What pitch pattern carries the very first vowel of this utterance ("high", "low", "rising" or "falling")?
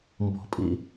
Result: low